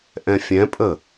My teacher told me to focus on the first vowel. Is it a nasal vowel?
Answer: yes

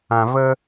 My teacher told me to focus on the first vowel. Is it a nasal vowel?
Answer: yes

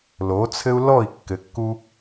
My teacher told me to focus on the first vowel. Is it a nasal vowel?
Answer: no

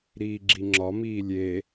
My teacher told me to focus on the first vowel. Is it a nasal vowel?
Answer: no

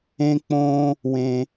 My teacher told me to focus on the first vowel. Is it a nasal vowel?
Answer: yes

